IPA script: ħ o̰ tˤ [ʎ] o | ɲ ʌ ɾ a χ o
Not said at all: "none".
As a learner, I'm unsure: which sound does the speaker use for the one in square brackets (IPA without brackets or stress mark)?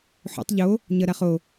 ʎ